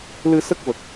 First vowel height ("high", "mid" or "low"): high